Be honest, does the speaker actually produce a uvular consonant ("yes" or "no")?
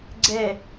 no